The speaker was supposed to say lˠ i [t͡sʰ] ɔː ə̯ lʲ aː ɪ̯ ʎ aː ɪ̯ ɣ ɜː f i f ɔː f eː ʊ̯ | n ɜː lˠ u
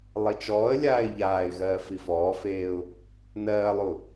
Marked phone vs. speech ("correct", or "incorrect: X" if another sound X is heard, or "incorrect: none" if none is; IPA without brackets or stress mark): incorrect: t͡ʃ